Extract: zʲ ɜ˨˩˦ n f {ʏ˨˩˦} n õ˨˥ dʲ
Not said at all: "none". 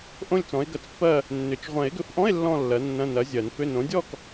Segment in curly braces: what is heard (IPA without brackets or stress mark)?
ʏ˧˥˧